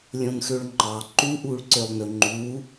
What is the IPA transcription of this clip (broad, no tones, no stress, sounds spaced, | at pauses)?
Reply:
lʲ õ n x ø ɭ ŋ͡ǃ ɑ ǃ u ʔ uː ɭ ǀ ø lˠ n ɵ ŋ͡ǃ uː